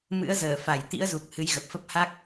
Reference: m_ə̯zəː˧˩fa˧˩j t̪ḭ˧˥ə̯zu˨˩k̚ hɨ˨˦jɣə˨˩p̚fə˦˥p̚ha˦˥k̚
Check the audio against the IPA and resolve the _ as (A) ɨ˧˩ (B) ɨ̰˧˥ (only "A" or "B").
B